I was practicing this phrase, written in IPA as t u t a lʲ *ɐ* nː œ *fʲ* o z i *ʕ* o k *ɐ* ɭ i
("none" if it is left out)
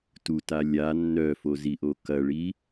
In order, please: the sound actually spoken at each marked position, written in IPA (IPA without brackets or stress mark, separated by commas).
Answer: a, f, ʔ, ɐ